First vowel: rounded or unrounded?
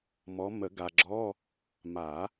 rounded